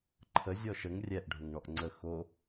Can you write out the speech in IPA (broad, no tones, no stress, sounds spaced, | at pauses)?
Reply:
ǃʰ ə zʲ ɔ ʃ ə ŋ rʲ ɛ ʔ ɖʱ ʊ ŋ ɳ ɔ ʔ ŋ͡ǀ ə x o